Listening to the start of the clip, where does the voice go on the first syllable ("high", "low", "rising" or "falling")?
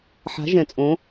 rising